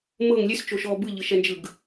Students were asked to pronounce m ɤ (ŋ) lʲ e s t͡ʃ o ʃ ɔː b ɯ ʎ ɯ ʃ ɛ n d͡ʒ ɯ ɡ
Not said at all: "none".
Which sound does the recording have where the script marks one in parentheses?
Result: ŋ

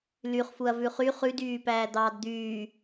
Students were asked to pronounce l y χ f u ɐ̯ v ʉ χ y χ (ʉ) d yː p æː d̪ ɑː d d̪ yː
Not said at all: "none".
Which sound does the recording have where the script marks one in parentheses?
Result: ʉ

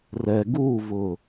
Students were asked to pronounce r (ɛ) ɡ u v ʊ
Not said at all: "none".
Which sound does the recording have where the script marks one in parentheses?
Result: ɛ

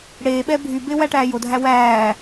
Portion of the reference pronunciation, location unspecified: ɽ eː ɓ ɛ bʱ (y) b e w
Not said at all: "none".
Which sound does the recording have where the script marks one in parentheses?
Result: y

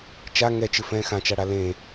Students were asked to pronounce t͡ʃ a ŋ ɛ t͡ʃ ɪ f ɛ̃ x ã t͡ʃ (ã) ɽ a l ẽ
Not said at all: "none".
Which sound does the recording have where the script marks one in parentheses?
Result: a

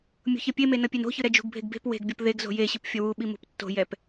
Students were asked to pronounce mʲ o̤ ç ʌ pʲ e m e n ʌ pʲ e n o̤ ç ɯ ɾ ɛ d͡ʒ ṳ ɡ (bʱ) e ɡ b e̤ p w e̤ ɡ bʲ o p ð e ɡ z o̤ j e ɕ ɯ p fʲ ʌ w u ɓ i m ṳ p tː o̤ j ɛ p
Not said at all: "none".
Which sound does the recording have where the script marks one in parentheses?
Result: bʱ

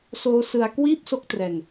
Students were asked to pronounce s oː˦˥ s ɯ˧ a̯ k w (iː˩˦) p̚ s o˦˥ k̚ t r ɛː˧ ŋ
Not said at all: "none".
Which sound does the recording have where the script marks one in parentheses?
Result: iː˥˩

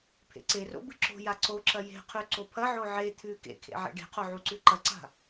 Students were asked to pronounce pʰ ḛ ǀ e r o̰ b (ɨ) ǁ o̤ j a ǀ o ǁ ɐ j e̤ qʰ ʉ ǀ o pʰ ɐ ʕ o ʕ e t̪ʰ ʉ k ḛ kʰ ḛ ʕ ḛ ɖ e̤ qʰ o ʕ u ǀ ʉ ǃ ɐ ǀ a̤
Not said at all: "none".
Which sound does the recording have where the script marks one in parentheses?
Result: ɨ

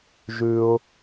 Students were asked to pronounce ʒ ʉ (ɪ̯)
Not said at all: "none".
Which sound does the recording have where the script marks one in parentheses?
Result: ʊ̯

